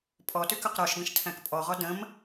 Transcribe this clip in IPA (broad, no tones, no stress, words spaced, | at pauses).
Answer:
pʼɔtʉkɵq ɾɔʃɡə̃ʃ tʰæ̃kpʼɔʁɔ də̃m